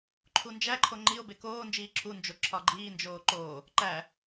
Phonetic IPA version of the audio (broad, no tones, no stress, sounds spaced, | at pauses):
ǃʰ u n d͡ʒ æ ǃʰ o ŋ͡ǃ i o̯ b e k oː n d͡ʒ iː ǁʰ u n d͡ʒ o ǁʰ ɒ ɡ͡ǃ iː n d͡ʒ oː ǃ o | ǃ æ